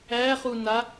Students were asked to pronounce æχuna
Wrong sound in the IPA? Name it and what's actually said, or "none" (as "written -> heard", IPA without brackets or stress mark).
none